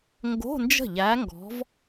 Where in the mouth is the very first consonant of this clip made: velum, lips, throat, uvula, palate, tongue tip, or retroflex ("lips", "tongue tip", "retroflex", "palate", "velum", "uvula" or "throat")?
velum